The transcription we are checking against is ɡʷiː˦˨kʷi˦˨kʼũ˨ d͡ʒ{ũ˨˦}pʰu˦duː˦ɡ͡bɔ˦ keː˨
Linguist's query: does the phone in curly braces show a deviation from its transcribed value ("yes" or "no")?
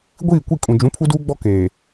no